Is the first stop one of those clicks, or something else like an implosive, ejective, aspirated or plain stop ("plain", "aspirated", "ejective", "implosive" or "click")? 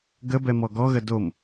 plain